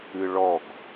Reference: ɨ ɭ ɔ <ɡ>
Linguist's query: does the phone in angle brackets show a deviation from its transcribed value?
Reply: no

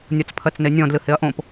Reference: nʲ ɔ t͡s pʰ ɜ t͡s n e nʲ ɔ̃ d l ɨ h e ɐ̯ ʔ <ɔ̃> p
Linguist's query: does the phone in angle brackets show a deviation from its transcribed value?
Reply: yes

